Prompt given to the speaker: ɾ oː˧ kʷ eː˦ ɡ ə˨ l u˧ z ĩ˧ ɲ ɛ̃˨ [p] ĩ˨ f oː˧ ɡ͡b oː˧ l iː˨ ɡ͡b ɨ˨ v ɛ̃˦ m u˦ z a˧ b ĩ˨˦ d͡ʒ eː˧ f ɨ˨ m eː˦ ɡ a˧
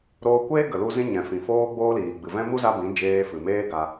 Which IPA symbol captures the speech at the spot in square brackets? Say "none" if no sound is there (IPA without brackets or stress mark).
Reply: f